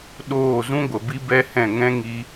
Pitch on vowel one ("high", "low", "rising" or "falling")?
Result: falling